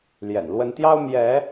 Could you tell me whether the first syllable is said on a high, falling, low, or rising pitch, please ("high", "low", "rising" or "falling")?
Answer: low